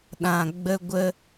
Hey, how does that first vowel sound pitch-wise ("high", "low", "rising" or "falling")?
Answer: low